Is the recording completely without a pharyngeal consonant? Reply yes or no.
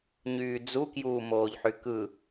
no